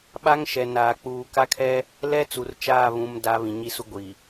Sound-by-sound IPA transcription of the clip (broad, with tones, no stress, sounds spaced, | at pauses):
ɓ a˦ ŋ ʃ ɛ˨ n aː˨ k͡p uː˨ k a˦ kʰ ɛ˦ | l ɛ˦ t͡s u˨ r t͡ʃ aː˦˨ β ũ˦ m d a˦ β ĩ˨ ɲ i˦ s u˦ ɡʷ i˨